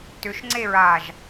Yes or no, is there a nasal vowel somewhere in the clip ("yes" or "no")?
no